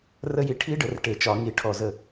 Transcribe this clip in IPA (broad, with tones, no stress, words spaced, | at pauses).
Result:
rə˦˥ji˧ ʈʰi˦˥ɖə˧˩˧r ʈe˧˩˧t͡ʃɒ˧˩˧ŋi˧˩˧ʈʰɔ˧˩ zə˧˩